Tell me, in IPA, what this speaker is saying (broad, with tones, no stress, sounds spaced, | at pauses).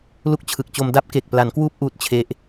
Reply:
l u˦˥ k̚ t͡ɕʰ ɯ˨˩ k̚ t͡ɕ o˧ m d a˦˥ p̚ k e˨˩ k̚ p l a˩˦ n k w uː˦˥ p̚ ʔ uː˦˥ t̚ t͡ɕʰ e˦˥ ʔ